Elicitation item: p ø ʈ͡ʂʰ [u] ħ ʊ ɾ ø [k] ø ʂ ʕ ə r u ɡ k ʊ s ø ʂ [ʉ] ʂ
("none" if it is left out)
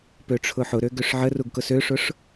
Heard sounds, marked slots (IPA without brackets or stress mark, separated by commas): ʊ, ɡ, ʊ